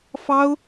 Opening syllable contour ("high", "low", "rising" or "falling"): high